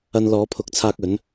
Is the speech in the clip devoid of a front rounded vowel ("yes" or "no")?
yes